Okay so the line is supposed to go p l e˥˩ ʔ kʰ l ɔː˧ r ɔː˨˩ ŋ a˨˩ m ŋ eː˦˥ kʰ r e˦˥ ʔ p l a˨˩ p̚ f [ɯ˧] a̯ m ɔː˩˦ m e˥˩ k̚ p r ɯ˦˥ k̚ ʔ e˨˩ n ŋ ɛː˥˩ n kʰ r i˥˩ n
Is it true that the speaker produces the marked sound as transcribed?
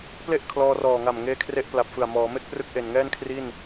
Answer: no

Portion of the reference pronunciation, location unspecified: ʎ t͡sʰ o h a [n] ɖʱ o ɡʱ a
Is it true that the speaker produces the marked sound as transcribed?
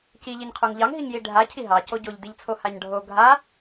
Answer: no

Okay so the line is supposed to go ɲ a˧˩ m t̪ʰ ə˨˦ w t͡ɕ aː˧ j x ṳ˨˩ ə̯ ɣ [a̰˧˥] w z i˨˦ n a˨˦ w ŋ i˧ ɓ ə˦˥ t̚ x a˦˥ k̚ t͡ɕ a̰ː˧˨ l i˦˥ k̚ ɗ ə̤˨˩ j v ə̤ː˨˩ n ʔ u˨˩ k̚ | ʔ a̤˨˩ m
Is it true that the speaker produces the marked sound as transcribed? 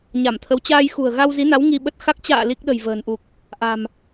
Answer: no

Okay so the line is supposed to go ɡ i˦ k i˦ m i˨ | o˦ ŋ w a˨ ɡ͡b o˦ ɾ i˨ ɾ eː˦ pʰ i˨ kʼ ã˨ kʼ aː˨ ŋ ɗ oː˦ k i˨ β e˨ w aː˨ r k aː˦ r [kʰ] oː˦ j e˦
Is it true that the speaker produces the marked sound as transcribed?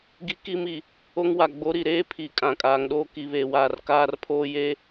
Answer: no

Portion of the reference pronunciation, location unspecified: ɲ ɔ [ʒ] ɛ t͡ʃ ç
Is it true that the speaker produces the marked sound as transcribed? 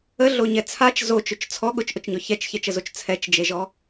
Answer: no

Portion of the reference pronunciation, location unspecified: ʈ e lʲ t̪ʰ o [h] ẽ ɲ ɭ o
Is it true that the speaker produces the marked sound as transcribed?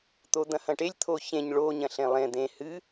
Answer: no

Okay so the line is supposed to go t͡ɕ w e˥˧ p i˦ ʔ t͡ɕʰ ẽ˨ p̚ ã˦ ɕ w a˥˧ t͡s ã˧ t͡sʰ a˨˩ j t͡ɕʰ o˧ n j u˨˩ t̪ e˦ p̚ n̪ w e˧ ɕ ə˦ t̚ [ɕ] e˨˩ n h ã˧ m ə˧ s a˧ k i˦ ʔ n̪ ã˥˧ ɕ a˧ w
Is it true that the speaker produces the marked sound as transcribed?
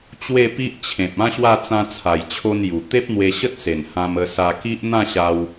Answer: no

